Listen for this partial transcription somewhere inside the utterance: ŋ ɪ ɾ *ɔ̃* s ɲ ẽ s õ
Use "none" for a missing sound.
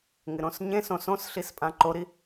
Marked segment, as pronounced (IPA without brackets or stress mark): õ